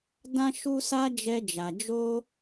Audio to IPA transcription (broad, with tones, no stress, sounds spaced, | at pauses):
d ã˦ ʃ u˦ s a˦ d͡ʒ ɛ˦ d͡ʒ a˧ d͡ʒ o˦